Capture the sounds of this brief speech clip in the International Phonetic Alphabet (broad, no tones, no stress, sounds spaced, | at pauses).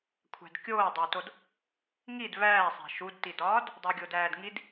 kʷʰ æ̤ d kʲ oː dˤ æ t o d | ŋ i d β æː sˤ æ̤ ʃ u d t i d ɒː d | dˤ u ɡʲ o d æː d ŋ i d